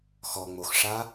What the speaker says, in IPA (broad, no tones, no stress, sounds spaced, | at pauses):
x ɔ ŋ͡m o x ʂ a